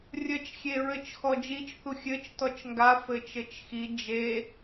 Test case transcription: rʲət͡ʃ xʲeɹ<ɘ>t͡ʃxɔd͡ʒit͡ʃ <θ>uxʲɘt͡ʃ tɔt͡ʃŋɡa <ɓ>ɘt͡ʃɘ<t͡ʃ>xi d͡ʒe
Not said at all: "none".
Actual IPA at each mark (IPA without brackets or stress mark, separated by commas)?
ɘ, θ, f, t͡ʃ